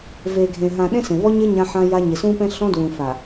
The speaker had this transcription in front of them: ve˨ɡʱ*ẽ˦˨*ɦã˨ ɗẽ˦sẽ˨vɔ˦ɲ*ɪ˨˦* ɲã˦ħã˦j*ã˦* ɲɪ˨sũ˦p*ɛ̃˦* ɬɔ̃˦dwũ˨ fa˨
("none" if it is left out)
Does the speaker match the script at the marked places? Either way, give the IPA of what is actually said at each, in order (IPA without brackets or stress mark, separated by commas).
ẽ˨, ɪ˦, a˦, ɛ̃˦